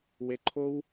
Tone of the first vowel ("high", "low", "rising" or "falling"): low